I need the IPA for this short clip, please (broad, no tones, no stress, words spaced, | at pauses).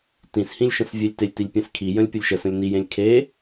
tĩshĩlʲ ʃə̃svʲelʲtelʲtilʲ pʲẽskʰijə̃lʲ pʲəlʲʃəsə̃lʲ nijẽlʲ kʰe